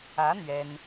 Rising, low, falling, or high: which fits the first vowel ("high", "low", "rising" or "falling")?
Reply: rising